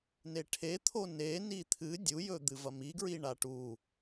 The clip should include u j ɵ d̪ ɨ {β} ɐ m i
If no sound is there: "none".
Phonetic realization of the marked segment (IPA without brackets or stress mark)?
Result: v